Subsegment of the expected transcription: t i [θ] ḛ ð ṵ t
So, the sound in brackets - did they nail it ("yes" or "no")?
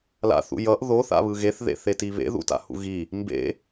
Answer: no